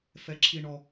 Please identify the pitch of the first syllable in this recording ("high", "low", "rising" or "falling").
low